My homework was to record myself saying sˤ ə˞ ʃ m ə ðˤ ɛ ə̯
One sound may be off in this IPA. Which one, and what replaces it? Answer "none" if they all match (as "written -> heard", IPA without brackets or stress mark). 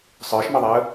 none